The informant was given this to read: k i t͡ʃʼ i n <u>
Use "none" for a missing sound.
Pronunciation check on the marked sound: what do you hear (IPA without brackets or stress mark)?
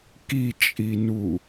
u